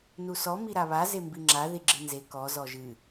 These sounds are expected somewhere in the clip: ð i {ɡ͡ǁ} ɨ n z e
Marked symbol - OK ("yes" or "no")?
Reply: yes